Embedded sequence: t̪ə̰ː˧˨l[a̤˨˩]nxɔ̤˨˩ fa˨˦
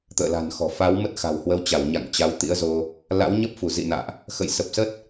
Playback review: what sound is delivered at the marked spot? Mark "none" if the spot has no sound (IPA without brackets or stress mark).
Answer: a̤˨˩